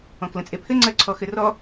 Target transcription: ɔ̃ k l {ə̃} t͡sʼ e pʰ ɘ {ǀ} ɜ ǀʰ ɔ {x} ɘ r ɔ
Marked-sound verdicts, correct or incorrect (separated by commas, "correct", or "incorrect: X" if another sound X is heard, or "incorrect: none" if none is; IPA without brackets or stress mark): correct, incorrect: ŋ͡ǀ, correct